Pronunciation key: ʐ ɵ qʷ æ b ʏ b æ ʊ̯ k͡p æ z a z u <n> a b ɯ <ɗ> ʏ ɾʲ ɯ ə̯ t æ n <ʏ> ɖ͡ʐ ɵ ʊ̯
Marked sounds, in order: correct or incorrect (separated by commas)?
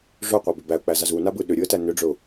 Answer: correct, correct, correct